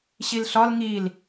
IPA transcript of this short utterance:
ɕ i l ɬ ɒ l ŋ i l

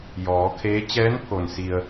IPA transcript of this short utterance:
j ɔː˩˧ kʰ eː˧˥ t͡ɕ ɛː˧˥ n pʰ o˩ n s i˧ ə̯

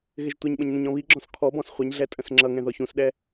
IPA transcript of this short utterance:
ɣ ɪ ʒ tʷ ɛ ɲ ɓ ə̃ ɲ n ə̃ ɲ ɔ̃ β i ɡ͡ǁ ɔ̃ s kʰ ɔ b ɔ̃ s χʷ ɛ ɲ ɮ ɛ tʼ ə̃ s ŋ͡ǁ ʌ ŋ ɛ̃ ð ɔ ç ũ s ɗ ɛ

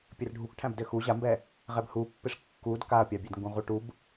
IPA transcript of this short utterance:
pʲ ɘ r ɖʱ u k ʈʰ æ̃ b d ɘ x u ʑ a m b ɛ | ʁ ɛ b h u pː ɪ ʂ kː u d k a ɐ̯ pʲ ɑ bʲ ɛ d ŋ ɡ ũ ʁ u ʈ u b

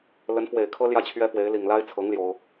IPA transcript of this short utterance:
l ə˧˥ n f w e˨˩ ɪ̯ kʰ ɤ˥ l j ä˥˩ t͡ɕʰ ɥ ɛ˥ f w e˧˥ ɪ̯ l i˨˩ ŋ l a˥ ɪ̯ t͡sʰ ɤ˧˥ ŋ l j o˥ ʊ̯

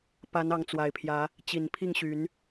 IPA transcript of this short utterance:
p a˨˦ n ɑ˨˦ ŋ t͡s w a˨˩ ɪ̯ pʰ j ä˨˦ | t͡ɕ i˨˩ n pʰ i˥˨ ŋ ɕ y˨˦ n

